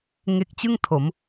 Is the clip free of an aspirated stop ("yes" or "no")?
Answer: no